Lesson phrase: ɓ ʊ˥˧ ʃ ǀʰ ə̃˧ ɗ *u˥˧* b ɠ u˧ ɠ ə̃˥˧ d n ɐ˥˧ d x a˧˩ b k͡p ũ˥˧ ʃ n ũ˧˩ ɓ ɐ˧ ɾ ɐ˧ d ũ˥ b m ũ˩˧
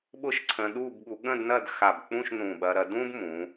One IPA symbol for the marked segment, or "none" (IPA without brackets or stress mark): u˥˧